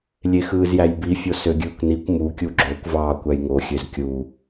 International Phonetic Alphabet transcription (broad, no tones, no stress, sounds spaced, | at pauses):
lʲ e x ɯː z j æ j b i fʲ o s ø ɡʲ ɯː kʷ n i kʷ m u kʲ u ɡ͡ǁ o kʷ v ɑː kʷ æ j ŋ o xʲ ø z kʲ u